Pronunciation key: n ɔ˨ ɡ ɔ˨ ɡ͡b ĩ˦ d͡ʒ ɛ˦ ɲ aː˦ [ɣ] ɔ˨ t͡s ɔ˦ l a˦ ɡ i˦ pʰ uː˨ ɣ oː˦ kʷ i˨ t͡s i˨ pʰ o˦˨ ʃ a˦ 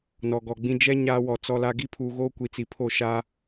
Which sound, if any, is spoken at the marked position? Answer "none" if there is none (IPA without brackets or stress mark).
w